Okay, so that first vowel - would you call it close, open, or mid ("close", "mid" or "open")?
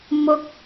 close